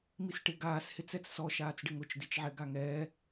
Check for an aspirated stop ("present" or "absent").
absent